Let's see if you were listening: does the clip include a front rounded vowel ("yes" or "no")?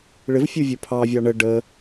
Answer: no